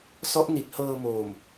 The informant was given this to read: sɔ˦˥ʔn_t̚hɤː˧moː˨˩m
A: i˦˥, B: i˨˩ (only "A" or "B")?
B